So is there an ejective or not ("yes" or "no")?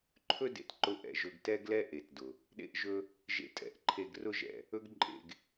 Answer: yes